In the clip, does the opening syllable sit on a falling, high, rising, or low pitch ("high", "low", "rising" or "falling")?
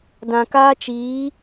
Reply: low